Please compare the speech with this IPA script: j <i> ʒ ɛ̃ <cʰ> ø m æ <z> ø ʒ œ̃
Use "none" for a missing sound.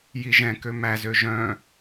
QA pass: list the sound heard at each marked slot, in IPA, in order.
i, k, z

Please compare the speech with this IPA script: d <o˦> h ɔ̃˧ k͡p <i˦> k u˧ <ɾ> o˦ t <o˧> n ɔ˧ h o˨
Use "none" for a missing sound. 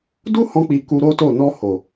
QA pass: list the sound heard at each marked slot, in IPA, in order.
u˦, i˨, ɾ, o˦˨

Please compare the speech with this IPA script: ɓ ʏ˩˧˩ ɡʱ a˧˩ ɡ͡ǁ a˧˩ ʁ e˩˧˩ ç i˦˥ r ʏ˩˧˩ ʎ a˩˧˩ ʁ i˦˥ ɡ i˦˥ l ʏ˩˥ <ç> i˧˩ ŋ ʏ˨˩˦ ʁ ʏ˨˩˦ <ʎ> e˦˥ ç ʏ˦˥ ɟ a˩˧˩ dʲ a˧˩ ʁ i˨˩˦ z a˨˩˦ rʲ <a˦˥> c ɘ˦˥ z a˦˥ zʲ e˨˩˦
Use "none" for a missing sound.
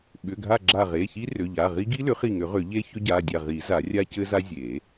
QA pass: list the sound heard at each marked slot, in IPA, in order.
χ, ʎ, a˦˥

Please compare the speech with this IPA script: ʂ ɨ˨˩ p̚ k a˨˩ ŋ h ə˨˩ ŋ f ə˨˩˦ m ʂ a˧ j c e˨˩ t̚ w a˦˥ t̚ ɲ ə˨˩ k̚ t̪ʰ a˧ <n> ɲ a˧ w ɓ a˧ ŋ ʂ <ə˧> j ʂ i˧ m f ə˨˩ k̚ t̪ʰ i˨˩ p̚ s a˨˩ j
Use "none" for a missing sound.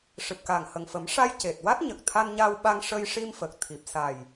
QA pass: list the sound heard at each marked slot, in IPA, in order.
n, ə˧

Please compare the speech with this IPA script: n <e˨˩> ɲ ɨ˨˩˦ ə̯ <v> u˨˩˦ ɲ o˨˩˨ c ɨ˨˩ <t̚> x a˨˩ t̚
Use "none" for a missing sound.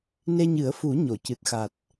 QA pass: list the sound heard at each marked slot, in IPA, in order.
e˧, f, t̚

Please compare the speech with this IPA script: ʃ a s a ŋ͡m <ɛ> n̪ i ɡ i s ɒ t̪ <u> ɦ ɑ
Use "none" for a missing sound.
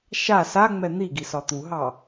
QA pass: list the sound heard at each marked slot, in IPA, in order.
ɛ, u

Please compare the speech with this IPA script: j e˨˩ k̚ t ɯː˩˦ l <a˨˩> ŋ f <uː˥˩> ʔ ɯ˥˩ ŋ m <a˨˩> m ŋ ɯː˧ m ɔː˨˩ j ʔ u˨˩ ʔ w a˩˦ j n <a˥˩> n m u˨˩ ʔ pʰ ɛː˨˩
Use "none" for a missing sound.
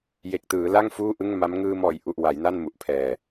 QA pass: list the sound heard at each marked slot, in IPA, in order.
a˥˩, uː˥˩, a˦˥, a˥˩

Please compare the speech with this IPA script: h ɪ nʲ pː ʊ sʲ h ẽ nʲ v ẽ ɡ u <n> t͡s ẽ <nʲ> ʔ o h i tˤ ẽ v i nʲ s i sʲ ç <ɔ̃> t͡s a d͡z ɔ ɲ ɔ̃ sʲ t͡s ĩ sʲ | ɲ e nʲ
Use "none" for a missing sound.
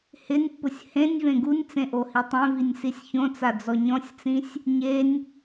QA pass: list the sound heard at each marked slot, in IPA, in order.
nʲ, none, õ

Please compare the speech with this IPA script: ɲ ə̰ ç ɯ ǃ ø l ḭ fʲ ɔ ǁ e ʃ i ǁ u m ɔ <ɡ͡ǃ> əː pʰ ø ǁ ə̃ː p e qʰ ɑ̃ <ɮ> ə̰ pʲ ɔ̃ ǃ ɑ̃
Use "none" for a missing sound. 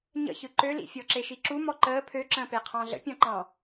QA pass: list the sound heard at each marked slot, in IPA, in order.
ǃ, ɮ

